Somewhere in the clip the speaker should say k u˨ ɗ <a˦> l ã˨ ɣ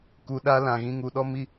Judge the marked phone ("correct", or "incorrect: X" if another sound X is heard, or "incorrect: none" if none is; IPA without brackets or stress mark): correct